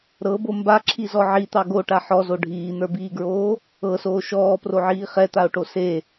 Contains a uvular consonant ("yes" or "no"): yes